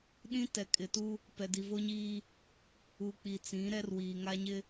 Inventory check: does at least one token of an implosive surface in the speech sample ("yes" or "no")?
yes